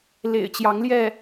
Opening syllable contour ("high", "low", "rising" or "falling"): low